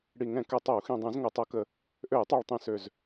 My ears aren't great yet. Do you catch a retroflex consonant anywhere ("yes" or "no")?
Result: yes